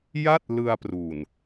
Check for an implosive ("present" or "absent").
absent